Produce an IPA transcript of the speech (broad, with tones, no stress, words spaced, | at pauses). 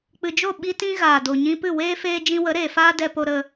k͡pɨ˨d͡ʒo˦˨ ɓi˦tĩ˦ɣaː˨ do˨ɲĩ˧pɨ˦˨ weː˦feː˧ d͡ʒĩ˧wə˨˦ɾeː˨faː˦ dɛ˧ po˧ ɾə˧